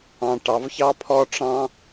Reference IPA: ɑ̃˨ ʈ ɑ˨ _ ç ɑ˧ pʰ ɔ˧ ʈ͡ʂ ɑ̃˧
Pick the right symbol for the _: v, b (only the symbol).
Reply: v